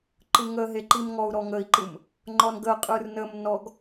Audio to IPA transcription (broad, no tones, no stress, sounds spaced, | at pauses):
ǃ ɯ ŋ ə ɦ e ǃ i m ŋ ɔ u̯ ɾ ɔ ŋ ə i̯ ǃ ɯ m | ŋ͡ǃ ɔ n ɡ ə qʼ ɯ r n ə m n ɔ ɡ